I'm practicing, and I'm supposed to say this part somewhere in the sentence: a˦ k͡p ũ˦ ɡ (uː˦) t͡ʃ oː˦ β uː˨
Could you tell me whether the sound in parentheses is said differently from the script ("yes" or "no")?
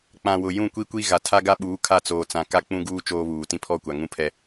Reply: no